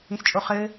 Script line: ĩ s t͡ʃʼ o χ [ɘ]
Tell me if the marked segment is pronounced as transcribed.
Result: yes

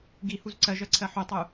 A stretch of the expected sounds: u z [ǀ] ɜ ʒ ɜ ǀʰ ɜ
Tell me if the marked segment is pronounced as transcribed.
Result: yes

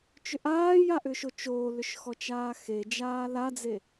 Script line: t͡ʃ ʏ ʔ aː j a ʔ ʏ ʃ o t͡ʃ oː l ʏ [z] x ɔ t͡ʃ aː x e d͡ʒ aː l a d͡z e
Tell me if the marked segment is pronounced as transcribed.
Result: no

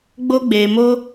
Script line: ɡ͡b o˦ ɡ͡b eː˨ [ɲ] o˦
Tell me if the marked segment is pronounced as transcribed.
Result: no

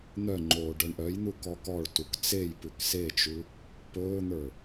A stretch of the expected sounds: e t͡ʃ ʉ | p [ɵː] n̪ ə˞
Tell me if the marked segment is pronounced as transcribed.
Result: yes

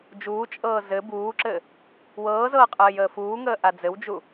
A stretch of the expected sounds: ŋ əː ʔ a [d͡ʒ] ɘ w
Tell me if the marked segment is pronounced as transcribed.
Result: no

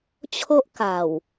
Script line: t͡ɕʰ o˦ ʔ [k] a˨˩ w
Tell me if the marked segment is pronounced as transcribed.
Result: yes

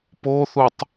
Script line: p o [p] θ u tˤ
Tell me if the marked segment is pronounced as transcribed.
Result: no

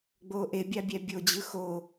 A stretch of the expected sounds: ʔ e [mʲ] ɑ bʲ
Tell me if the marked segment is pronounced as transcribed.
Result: no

